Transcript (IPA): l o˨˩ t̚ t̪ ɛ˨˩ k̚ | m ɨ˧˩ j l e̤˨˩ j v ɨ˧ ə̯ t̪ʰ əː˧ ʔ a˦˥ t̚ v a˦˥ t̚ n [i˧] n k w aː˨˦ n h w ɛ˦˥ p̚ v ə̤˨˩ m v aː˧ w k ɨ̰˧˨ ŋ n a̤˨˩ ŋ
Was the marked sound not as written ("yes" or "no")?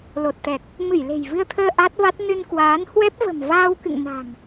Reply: yes